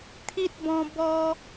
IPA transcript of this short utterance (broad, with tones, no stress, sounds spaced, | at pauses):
t̪ʰ i˦ t̚ b ɔ̃˧ b ɔ˦